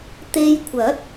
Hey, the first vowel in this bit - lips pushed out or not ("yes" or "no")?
no